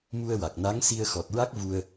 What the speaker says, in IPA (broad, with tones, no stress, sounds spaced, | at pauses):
m u˧ ə̯ w a˨˩ k̚ n a˧˥ ŋ s i˧ ə̯ x ɔ˨˩ t̚ ɹ a˦˥ k̚ v u˧ ə̯